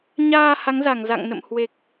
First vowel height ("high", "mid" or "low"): low